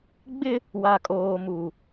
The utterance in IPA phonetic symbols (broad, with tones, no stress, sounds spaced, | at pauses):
ɡ͡b ɪ˦ | w a˨ kʼ oː˨ m u˨